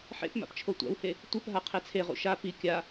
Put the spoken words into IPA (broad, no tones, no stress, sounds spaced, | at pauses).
ħ ḛ p m a̰ p t͡ʃʰ o tʷ a̰ w h e | tʷ ɯ p ɦ a qʰ e t͡sʰ e ʁ ṵ ʃ a p i kʲ a